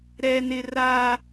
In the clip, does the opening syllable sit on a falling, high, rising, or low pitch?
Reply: high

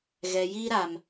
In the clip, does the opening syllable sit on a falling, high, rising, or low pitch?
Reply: low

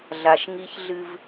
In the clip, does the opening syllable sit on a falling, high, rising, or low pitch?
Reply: low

